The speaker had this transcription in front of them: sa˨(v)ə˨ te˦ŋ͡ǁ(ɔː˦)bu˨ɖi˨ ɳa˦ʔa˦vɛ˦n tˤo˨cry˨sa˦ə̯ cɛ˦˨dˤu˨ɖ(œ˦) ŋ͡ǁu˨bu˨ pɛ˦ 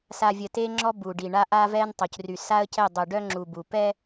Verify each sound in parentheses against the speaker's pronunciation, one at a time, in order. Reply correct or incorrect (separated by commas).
incorrect, incorrect, correct